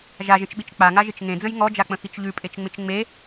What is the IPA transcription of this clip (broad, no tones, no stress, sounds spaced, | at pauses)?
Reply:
ʒ a ʒ ə̃ t͡ʃ ɓ i t͡ʃ k͡p a ŋ a ʒ ɪ t͡ʃ ŋ ẽ d͡z ə̃ j ŋ ɔ d͡ʒ a k͡p ə̃ x i t͡ʃ ʎ ʉ pʼ e t͡ʃ ŋ͡m ɪ t͡ʃ ŋ͡m e